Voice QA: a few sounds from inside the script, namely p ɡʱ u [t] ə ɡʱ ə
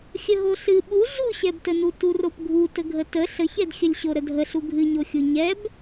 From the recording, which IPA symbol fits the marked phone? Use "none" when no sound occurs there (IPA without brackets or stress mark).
t